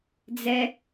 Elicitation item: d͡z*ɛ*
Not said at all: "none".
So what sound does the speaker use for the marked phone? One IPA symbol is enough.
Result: ɛ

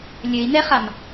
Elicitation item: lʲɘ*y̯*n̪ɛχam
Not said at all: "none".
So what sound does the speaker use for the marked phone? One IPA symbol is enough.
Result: i̯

